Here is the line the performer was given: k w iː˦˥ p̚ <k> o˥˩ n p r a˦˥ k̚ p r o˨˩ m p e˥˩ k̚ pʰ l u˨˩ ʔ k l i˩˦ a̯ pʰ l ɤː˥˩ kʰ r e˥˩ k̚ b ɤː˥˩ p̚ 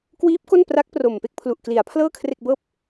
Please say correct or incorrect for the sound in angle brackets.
correct